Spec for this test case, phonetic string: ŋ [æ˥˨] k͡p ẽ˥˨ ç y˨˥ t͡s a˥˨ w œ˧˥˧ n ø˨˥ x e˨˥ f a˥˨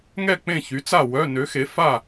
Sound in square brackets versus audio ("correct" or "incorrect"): incorrect